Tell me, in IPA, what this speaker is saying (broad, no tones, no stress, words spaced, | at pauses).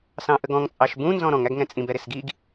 sɑ̃ʔəɡɔ̃ŋ t͡sʼɑʃbũ nzɔ̃ɾɔ̃ŋ æɡŋɛ̃t͡sʼĩb ɛɾɪsɡiɡ